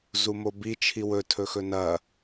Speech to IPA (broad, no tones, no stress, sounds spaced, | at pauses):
z u m o b i t͡ʃʰ i w ɵ tʰ ɵ x ɵ n ɐ